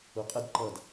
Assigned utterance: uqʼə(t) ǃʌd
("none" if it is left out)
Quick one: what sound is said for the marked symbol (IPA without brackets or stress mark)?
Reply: d